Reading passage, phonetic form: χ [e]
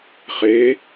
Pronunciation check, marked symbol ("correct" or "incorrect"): correct